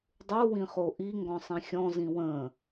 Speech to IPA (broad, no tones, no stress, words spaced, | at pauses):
dˤu wĩχoʔi ŋɡɔ̃sˤĩxʲɔ̃ zĩwə̃ː